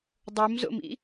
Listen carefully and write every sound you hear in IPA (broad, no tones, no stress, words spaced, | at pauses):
dˤomzo̰mḭ